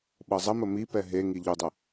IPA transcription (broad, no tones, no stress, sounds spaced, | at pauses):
ɓ ɤ zˤ ə m ə m i p ɛ ɦ e ŋ i ʎ u dˤ ə